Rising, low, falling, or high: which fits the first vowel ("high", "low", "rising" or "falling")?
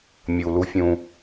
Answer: low